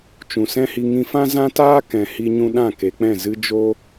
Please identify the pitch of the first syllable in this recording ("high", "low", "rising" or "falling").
low